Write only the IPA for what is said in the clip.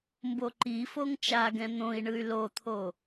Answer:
m b o ǃ i f o ŋ t͡ʃ a ɡ ɛ̃ n̪ õ i̯ ɳ ɯ y̯ l o t̪ʰ o

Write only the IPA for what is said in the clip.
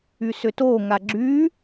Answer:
y s ʏ t o ŋ a ɡ͡ǁ y

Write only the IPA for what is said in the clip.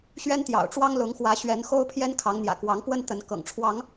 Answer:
ɕ ɥ ɛ˦ n t̪ j ɑ̰˨˩ ʊ̯ ʈ͡ʂ w ɑ˦ ŋ l ʊ˨˦ ŋ x w ä˨˦ ɕ ɥ ɛ˨˦ n x o˦ ʊ̯ pʰ j ɛ˦ n kʰ ɑ˨˦ ŋ n̪ j ä̰˨˩ k w ɑ˨˦ ŋ p w ə˦ n t̪ ə˨˦ n k ɤ̰˨˩ ŋ ʈ͡ʂʰ w ɑ˨˦ ŋ

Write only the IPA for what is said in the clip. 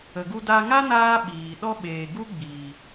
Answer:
ə˨ ɡ u˧ d a˧ ŋ a˦ n aː˦ ɓ iː˨ ɗ ɔ˦ ɓ eː˨ ɡ u˦ ɡ͡b iː˨

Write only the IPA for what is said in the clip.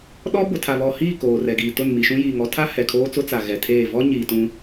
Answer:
ɗ ɔ˦ b ʊ˨ tʰ a˨ β ɔ˨ h iː˦˨ k oː˨ r ɛ˨ ɡ iː˨ t ʊ˦˨ n m i˨ ʃ ũ˦ j iː˨ ŋ ɔ˦ tʰ a˦ h ɛ˨ kʰ oː˦ t͡s ʊ˦ t͡s a˨ ɣ ɛ˨ tʰ eː˦˨ v ɔ˦ ɲ iː˨ t ũ˦

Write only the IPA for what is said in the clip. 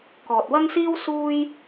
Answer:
k ɔː˨ t̚ w ɐ˥ ŋ s iː˥ w s uː˥ j

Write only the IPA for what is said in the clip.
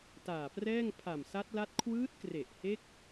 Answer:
t aː˨˩ p r ɛː˥˩ ŋ pʰ a˨˩ m s a˦˥ t̚ l a˦˥ t̚ kʰ w ɯː˦˥ t̚ k r e˨˩ ʔ h e˦˥ k̚

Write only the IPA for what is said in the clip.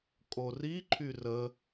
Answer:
kʼ o r i ǃʰ y r ə

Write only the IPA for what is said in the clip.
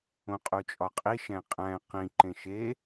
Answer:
õ qʼ u t͡ʃʼ ɒ qʼ i ʃ æ̃ qʼ æ̃ q ĩ ǃ ẽ ʃ e

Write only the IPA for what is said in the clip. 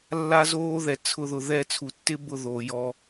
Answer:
lː a˦ z oː˦ ð ɛ˨ t͡sʰ ʊ˦ ð ʊ˧ ð ɛ˦˨ t͡sʰ u˨ tː ɪ˦ b ʊ˦˨ ð oː˨ j ɔ˧

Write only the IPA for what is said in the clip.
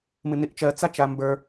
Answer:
m ɨ n i ʔ t͡ʃ ɜ t͡s a t͡ʃ a m b ə˞

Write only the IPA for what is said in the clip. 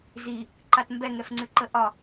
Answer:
z i | ǃ a t m b ɛ ŋ ɛ f ŋ͡ǀ ʉ ǃ ə ʔ ɒ

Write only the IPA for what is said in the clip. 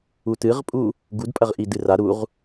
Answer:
u t ɨ ʁ pʼ u | ɡ u d pʼ ɐ ʁ ʔ i d ɨ r a ɾ u ʁ

